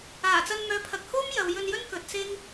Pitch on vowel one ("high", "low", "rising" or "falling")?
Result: low